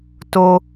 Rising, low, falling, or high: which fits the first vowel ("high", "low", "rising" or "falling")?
high